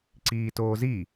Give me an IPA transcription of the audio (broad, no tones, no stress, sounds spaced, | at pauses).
ǀ iː t oː z i